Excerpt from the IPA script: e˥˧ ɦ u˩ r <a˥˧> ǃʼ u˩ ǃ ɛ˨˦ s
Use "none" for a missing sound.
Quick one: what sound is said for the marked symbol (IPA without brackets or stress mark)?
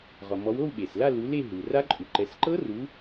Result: a˦˥